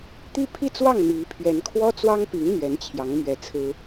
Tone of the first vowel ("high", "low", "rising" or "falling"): falling